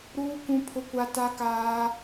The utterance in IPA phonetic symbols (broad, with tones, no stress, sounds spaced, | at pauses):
ɾ uː˦ k ũ˦ pʰ ʊ˦ kʷ a˦ t a˦ k aː˦